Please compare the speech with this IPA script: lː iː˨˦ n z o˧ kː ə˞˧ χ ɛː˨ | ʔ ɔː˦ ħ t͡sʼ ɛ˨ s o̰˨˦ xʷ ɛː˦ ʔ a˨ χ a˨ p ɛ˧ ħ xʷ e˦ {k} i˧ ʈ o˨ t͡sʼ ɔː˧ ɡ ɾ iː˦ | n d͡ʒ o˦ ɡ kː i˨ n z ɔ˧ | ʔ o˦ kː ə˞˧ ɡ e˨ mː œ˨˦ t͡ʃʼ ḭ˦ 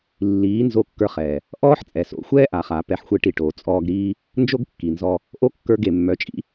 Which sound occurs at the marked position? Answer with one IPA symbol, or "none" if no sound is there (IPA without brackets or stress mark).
ʈ